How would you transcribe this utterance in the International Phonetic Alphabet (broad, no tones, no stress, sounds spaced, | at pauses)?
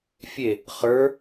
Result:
fʲ e | χ ə˞